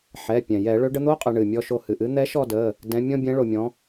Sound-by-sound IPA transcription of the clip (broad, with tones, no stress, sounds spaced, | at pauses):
ħ ɛ˩˧˩ pʲ ɛ̃˩ j ɛ˧˩˧ ɭ ø˨˥ ɖ ə˨˥ n̪ o˧˥˧ qʼ ə˧˩˧ ɳ ɨ˩ mʲ ɔ˦˨ ʃ o˦˨ h ɨ˩ ʔ ɨ˨˥ n̪ ɛ˨˥ ʃ ɔ˦˨ d ə˩˧˩ | d ɛ̃˨˥ mʲ ɔ̃˧˥˧ bʲ ɛ̃˨˥ ɭ o˩ mʲ ɔ̃˨˥